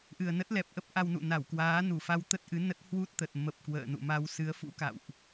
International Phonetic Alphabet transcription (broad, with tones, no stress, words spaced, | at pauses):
ʔɨ˨˩ə̯nə˦˥t̚lɛ˨˩p̚ʔə˦˥p̚ ʔa˧wnṵ˧˨na˧˩w kwaː˨˦nu˧˩fa˧w t̪ə˦˥t̚ʔɨ˨˦nə˦˥t̚ hwu˦˥t̚t̪ə˨˩t̚mə˨˩p̚ kwə̰ː˧˨nṵ˧˨ma˧w sɨ˨˦ə̯fṵ˧˥ ka̰˧˨wʔ